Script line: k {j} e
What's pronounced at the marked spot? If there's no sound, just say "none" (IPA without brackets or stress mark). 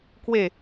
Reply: w